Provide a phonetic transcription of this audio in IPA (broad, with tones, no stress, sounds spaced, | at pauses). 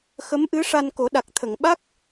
x ə˧˥ m ʔ ɨ˧˥ ʂ a˧ n k o˨˩˦ ɗ a˨˩ k̚ t̪ʰ ə˨˩˨ ŋ ɓ a˦˥ k̚